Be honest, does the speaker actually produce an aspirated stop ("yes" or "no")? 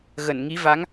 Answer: no